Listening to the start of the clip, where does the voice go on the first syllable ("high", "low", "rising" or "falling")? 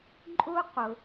high